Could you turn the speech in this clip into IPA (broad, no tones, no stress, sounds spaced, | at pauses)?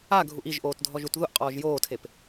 a ɡʱ u ʔ i ʒ ʔ oː t dʱ ɔ ʒ u t ð ʊ ʔ qʼ ɔː ʒ j oː tʰ e p